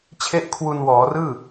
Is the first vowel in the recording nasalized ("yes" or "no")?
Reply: no